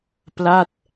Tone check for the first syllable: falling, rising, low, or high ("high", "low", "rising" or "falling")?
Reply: falling